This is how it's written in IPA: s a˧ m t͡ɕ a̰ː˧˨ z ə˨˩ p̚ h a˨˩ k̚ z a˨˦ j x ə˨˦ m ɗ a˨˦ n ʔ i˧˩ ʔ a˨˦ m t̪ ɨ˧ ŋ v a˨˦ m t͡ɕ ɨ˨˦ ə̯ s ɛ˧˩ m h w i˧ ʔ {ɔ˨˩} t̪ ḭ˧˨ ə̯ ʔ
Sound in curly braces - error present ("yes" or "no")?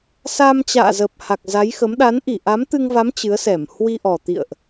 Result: no